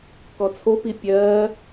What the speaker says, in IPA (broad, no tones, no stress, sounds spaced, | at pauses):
k ɔ t͡sʰ o p i pʲ ɜː